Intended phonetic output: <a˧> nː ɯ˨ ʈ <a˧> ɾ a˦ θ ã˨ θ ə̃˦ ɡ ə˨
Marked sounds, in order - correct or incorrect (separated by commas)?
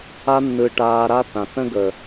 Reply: correct, incorrect